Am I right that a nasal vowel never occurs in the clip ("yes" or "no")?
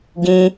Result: no